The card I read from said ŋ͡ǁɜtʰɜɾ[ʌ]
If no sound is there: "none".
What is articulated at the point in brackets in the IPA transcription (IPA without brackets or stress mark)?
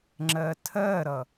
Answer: ʌ